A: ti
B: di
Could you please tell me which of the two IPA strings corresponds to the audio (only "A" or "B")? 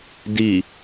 B